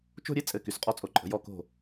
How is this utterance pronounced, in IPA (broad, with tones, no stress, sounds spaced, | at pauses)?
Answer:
t͡ʃ o̤˥˧ ɾʲ e˥ t͡sʼ ɘ˧˩ k y˩˧ s qʼ ɔ˧ t͡sʼ o˩˧ ǃʼ ə̤˩˧ j ɔ˧˩ k o̤˧˩